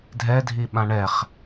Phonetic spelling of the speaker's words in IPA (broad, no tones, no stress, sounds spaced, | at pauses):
dʱ ɛ dʱ i ɓ ã ɳ ɛ χ